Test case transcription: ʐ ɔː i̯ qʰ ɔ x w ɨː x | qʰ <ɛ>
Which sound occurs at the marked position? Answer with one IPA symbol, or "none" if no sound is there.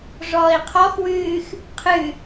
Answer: ɨ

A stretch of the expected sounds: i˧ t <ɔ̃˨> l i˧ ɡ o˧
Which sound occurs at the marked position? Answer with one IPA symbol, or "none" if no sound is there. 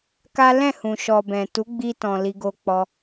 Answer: ɔ̃˨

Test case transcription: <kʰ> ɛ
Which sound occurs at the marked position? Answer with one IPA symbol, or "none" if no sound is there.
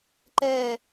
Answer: ǃ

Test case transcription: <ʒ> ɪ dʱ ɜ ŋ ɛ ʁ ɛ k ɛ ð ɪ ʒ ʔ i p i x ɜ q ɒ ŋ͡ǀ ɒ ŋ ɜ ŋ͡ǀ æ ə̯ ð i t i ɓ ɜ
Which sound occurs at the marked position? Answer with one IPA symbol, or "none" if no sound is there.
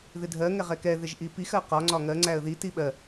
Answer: ð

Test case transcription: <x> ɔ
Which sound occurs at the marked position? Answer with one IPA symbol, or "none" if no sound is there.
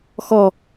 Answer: x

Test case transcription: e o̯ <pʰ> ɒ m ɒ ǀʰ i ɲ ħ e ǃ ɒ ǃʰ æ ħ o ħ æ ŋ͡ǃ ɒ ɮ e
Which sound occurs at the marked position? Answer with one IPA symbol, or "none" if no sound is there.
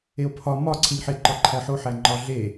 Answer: pʰ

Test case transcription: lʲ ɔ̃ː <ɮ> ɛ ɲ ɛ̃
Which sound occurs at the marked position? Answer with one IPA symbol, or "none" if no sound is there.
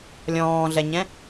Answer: ɮ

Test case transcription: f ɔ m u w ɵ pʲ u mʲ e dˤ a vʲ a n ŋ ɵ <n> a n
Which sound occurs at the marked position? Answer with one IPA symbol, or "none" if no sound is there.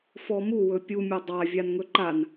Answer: ǃ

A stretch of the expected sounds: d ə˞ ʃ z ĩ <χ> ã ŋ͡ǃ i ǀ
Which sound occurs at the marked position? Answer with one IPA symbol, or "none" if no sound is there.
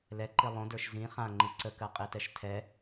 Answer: χ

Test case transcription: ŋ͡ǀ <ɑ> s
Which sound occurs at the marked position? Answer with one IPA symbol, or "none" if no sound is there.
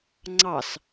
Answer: ɑ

